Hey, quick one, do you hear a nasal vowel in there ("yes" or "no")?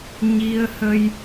no